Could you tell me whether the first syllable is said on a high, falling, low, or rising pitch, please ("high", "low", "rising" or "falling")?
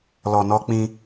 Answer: low